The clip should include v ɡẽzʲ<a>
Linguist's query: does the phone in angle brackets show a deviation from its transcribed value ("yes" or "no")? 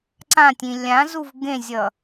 yes